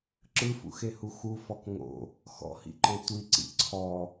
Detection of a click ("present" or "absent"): present